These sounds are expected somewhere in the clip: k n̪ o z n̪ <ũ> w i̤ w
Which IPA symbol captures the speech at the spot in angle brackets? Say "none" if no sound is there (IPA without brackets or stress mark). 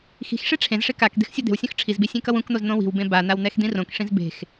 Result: õ